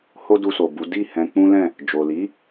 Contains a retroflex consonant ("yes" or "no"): no